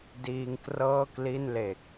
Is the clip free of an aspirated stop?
yes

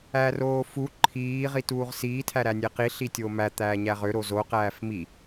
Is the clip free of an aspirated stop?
no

